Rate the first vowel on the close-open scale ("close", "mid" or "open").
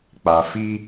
open